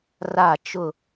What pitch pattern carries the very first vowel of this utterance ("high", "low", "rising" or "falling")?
falling